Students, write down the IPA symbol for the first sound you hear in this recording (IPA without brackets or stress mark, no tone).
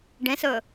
ɖ